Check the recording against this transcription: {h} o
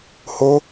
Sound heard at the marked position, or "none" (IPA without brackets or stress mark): h